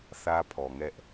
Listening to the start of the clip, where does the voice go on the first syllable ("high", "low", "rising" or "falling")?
high